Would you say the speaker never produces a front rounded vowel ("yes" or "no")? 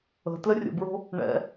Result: yes